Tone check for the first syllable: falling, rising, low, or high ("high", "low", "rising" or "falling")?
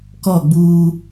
falling